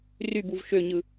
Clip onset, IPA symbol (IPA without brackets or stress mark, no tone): r